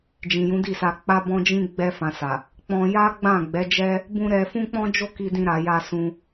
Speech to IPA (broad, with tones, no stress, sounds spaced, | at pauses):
d͡ʒ ĩ˨ j ũ˨˦ d i˦˨ s a˧ k͡p a˦ b ɔ̃˦ d͡ʒ ĩ˦ ɡ͡b ɛ˧ f ã˨ s a˨ | k͡p ɔ̃˧ j a˦ ɡ͡b ã˦˨ ɡ͡b ɛ˨˦ d͡ʒ ɛ˦ | b ũ˧ ɾ ɛ˧ f ũ˦ k͡p ɔ̃˦ d͡ʒ o˦ k i˧ d ĩ˧ ɾ a˨ j a˧ s ũ˧